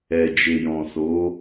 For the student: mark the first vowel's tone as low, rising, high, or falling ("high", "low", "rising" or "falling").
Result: low